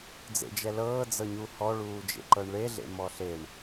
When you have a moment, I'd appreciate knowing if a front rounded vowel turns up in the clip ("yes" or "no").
no